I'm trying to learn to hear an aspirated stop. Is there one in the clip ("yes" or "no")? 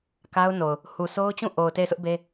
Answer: no